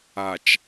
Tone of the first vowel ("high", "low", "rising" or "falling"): low